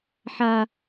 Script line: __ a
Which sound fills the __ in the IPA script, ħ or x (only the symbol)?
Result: ħ